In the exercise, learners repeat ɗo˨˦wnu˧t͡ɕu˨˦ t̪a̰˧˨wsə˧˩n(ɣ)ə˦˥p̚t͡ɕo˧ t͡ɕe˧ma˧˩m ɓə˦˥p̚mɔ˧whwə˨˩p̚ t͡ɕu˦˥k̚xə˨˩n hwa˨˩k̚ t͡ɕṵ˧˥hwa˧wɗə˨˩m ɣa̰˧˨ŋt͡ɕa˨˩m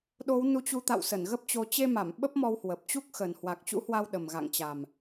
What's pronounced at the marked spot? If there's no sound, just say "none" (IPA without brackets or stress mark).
ɣ